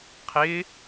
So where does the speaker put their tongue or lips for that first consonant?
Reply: uvula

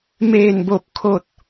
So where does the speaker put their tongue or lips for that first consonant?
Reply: lips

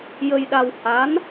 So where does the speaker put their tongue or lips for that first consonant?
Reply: palate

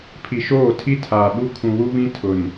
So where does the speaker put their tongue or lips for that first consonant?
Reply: lips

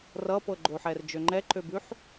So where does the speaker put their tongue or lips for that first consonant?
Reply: tongue tip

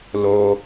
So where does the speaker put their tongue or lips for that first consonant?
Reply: tongue tip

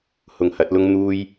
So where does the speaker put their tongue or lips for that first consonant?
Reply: throat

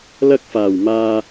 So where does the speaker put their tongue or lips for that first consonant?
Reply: tongue tip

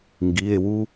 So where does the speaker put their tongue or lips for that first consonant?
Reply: velum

